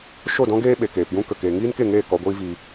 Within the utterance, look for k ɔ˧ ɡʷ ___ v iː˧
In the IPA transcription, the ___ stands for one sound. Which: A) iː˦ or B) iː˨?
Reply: A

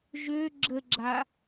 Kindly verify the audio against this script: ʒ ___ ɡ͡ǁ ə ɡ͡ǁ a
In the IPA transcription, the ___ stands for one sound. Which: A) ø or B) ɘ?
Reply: A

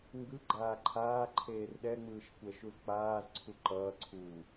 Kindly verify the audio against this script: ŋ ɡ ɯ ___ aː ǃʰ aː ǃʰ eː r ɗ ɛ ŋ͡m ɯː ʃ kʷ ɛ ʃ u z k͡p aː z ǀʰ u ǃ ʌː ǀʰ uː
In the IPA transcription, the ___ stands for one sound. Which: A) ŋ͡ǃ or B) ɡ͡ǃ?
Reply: B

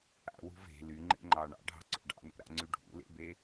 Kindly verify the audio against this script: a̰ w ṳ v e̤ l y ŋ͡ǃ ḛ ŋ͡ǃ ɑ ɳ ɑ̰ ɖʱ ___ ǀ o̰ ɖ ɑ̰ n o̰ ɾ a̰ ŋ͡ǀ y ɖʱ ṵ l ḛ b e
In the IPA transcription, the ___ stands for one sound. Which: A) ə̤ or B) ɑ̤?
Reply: B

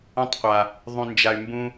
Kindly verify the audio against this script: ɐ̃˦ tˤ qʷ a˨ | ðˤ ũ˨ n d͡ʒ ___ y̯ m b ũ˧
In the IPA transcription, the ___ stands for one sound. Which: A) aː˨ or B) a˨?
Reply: B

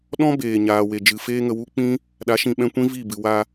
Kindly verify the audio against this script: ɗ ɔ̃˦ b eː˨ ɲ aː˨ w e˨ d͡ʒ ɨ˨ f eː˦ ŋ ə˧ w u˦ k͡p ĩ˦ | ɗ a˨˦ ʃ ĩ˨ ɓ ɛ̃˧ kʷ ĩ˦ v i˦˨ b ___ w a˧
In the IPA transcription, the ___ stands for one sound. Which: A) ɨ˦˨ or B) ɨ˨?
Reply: B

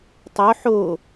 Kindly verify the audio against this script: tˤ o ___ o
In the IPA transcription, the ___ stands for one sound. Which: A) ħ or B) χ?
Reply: A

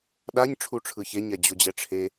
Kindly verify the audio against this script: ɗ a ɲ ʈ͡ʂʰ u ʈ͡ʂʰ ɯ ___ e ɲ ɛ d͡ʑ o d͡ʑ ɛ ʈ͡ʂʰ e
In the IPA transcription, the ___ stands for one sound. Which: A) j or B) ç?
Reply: B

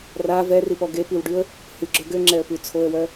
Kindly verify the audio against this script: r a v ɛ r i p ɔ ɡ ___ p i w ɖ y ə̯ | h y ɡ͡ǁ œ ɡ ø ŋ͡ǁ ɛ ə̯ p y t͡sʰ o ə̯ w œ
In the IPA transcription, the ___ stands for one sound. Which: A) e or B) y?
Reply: A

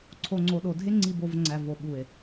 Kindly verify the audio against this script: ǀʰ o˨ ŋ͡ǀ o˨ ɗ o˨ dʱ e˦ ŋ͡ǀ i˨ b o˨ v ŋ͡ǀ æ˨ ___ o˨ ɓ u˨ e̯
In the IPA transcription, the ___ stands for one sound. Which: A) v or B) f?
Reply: A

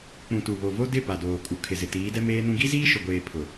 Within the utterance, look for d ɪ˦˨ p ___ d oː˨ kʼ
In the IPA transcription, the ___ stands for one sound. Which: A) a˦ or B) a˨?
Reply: B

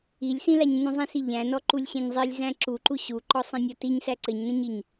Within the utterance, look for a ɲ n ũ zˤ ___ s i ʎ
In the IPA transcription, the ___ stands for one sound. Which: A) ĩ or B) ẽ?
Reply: A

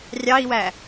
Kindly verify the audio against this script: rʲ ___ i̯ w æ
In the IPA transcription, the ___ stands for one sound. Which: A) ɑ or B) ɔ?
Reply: A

